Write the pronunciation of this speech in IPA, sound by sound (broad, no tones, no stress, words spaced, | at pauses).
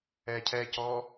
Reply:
ɛcʰɛcɔ